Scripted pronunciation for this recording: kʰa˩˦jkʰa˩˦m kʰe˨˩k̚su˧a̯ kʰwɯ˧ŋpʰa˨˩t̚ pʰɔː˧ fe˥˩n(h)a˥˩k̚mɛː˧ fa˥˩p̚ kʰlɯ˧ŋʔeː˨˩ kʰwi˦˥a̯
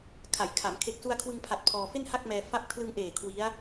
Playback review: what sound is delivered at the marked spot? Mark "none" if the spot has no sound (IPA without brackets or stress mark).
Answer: h